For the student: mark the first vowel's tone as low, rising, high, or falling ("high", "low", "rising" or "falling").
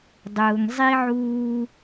low